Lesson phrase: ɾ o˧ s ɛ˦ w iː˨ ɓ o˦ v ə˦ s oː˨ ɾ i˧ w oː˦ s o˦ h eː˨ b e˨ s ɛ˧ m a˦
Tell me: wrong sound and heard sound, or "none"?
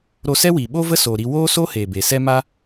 none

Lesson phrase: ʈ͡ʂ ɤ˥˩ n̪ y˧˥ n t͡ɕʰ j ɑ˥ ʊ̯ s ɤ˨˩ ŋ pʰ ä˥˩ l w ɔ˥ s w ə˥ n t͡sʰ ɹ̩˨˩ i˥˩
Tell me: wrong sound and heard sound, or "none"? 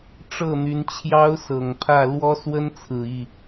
none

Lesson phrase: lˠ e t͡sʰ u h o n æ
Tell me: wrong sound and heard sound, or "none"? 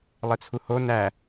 none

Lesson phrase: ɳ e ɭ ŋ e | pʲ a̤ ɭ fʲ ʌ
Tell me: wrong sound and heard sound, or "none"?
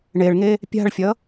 none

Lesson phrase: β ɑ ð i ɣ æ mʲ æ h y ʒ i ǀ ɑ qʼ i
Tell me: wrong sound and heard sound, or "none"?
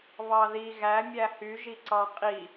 none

